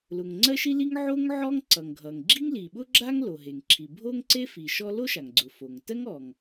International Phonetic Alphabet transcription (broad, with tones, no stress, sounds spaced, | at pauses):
l ʊ˩ ŋ ŋ͡ǀ ɜ˥ ʃ i˥ l i˥ ŋ ʕ o˥ ŋ ʕ ɔ˥ ŋ ǀ ʌ˩ ŋ ɡʱ ʌ˩ ŋ ɡ͡ǁ i˥ ŋ l i˩ ɓ ʊ˥ ɡ͡ǁ a˥ ŋ l o˩ ɦ e˩ ŋ ǁʰ i˩ bʱ o˥ ŋ ǀ e˥ f i˩ ʃ ɔ˥ l o˥ ʃ a˩ ŋ ɡ͡ǀ ʊ˩ f o˩ ŋ t ɜ˥ ŋ ɔ˩ ŋ